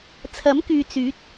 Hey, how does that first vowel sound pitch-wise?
rising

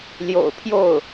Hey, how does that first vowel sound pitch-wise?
low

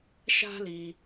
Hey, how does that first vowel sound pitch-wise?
high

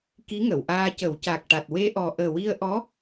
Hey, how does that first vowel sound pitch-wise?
rising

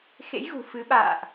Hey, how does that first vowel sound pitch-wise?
rising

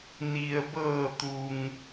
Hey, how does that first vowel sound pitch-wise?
low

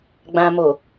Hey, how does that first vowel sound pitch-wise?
low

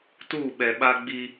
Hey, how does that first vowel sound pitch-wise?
falling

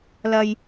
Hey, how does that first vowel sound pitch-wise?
low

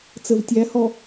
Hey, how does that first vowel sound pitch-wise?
low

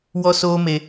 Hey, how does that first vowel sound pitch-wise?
high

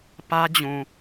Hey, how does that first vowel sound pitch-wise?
high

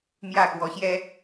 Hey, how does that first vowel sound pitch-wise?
falling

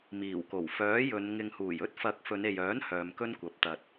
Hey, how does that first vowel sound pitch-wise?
low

